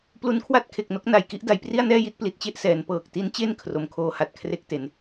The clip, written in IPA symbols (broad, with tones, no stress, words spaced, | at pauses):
plu˦˥nkʰwa˥˩t̚kʰe˨˩k̚no˦˥k̚ na˨˩jki˦˥ʔ da˩˦jpri˥˩a̯nɛː˥˩ji˥˩t̚ pli˨˩t̚t͡ɕe˥˩ʔsɛː˩˦n pɤː˨˩k̚ti˦˥nt͡ɕe˥˩n kʰro˨˩mkʰoː˦˥ha˨˩t̚ kʰre˥˩k̚te˨˩n